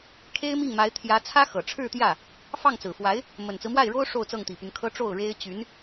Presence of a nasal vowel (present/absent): absent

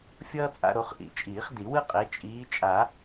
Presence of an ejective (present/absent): present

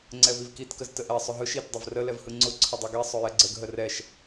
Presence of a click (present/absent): present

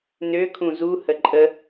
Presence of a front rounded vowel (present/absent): present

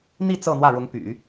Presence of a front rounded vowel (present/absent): present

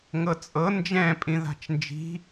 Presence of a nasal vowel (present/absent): present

